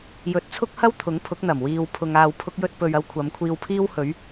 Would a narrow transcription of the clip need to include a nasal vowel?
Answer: no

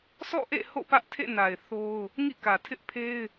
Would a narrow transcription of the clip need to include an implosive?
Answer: no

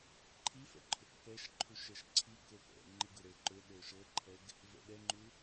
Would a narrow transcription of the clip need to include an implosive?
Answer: yes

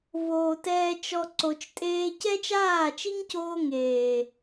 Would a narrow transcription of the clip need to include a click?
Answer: yes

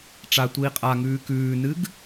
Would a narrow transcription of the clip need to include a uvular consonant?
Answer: yes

